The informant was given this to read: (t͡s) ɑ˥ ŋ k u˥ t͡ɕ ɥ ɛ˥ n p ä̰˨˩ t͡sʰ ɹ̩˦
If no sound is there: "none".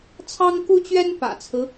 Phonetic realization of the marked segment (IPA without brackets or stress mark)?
t͡sʰ